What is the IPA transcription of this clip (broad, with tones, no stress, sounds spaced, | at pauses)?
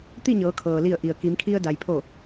t̪ i˥˨ ɲ ɤː˩˧ kʰ ɤː˩ l i˧˩ ə̯ ʔ i˩ ə̯ k i˩˧ m kʰ i˧ ə̯ d a˩ j pʰ o˧˩